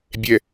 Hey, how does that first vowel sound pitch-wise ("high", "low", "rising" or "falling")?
low